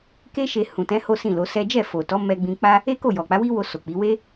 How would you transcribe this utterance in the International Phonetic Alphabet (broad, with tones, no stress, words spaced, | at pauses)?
ke˦ʃe˧ hũ˨tɛ̃˨˦ ho˦sĩ˦˨lo˨˦sɛ˦ d͡ʒɛ˦˨fo˨ tɔ˨˦mɛ˧ɡ͡bĩ˧k͡pa˦ | e˦ko˦˨ jɔ˨k͡pa˨˦wi˦wo˧ so˨k͡pi˨˦ we˦